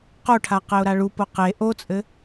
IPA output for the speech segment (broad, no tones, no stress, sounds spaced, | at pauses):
q o ʈʰ a q ɛ ʊ̯ ɾ a ɭ u p o q e ʔ o t͡sʼ ɘ